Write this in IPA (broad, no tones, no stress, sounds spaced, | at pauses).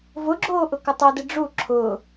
v ʊ ɡ͡ǁ oː ʔ ʊ k ʊ tˤ o d ɪ ɖ͡ʐ u ǁʰ ʊː